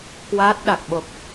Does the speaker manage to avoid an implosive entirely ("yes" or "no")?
no